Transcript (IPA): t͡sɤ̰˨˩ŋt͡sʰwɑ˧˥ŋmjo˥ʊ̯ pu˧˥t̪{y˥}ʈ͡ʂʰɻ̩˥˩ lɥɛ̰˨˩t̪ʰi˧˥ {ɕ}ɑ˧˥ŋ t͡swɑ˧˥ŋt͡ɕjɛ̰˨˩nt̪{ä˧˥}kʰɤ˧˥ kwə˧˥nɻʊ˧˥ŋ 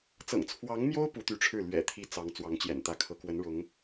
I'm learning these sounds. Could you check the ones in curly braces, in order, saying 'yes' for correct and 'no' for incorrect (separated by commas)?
no, no, yes